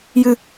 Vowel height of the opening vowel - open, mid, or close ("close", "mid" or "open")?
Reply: close